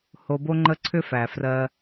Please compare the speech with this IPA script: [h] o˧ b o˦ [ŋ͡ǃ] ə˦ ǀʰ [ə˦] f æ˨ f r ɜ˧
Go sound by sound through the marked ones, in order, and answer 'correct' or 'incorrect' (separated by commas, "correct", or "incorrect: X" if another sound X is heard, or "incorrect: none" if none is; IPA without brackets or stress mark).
correct, correct, incorrect: ʏ˦